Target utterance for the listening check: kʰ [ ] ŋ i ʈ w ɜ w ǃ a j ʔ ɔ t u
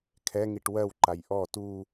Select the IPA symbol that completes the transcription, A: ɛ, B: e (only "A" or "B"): A